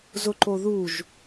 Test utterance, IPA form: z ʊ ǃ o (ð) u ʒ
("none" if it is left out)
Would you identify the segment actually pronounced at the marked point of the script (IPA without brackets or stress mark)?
ð